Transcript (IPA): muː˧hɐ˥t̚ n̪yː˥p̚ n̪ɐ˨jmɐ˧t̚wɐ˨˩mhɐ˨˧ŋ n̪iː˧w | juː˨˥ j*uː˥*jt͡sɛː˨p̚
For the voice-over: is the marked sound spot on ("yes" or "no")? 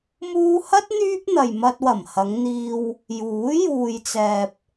no